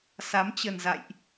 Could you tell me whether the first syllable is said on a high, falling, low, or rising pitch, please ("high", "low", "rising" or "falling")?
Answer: rising